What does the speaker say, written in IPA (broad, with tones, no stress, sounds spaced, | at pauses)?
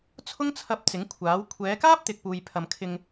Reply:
t͡sʰ ʊ˥ ŋ t͡sʰ ɐ˧ p̚ t͡s ɪ˨˥ ŋ kʷʰ aː˨˥ w kʷʰ ɛː˨˧ k aː˥ p̚ t̪ ɪ˨ k̚ p uː˧ j pʰ ɐ˧ m kʰ ɪ˧ ŋ